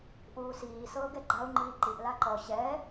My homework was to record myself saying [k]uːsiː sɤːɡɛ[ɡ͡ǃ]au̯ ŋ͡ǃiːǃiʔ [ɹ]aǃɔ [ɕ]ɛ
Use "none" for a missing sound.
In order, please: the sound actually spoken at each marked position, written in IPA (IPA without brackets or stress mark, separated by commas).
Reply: ʔ, ɡ͡ǃ, l, ɕ